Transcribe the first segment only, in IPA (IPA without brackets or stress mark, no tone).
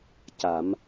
c